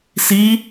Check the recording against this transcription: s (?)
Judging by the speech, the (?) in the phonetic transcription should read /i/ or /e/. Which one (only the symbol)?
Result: i